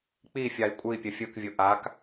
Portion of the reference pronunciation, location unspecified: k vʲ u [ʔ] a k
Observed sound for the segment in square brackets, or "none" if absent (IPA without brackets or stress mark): ʔ